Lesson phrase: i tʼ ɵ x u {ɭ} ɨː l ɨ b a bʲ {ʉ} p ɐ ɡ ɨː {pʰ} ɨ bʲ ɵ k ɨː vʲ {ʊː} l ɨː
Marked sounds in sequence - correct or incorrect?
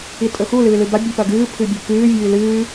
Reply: incorrect: l, correct, correct, incorrect: ʉː

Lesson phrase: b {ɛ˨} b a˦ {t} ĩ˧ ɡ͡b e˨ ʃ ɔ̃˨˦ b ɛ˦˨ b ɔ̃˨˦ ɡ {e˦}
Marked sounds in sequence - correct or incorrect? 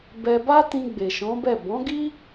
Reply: incorrect: ɛ˧, correct, incorrect: i˦

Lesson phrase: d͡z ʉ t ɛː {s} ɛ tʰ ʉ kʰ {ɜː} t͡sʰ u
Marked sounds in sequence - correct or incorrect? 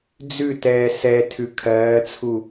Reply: correct, correct

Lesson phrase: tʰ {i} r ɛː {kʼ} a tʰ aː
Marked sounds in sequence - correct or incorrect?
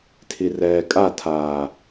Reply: correct, correct

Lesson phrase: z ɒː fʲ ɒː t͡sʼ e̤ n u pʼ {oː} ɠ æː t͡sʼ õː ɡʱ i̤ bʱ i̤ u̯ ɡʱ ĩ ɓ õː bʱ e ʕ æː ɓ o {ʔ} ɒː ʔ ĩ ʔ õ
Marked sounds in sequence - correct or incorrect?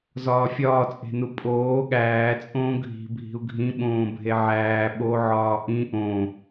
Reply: correct, incorrect: ʕ

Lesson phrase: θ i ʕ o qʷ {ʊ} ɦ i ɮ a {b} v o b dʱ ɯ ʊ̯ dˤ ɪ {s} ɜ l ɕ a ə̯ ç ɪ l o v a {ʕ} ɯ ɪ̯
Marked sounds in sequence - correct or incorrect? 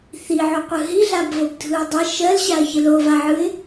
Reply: incorrect: ɯ, correct, incorrect: ʃ, correct

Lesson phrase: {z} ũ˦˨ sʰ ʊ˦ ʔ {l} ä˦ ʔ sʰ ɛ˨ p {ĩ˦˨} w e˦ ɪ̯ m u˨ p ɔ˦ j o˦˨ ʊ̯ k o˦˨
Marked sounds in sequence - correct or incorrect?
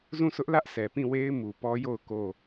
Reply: correct, correct, correct

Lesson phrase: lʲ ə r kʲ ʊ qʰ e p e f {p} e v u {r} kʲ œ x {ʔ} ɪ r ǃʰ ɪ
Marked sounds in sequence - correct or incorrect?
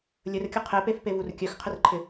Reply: correct, correct, incorrect: qʰ

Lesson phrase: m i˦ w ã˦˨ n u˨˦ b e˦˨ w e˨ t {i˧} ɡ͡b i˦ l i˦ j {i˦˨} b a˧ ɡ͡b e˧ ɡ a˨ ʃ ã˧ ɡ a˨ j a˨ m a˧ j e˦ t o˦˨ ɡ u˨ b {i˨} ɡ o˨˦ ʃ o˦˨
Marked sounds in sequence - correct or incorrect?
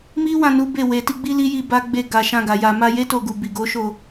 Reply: correct, correct, correct

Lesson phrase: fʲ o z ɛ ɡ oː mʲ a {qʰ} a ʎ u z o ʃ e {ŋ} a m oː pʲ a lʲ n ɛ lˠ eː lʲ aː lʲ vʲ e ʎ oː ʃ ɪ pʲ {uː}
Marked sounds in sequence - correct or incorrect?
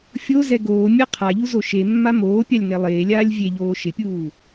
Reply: correct, incorrect: mː, correct

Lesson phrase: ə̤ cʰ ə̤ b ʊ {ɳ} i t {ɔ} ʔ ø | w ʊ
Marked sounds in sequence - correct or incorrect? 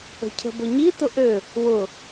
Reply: incorrect: ɲ, incorrect: ʊ

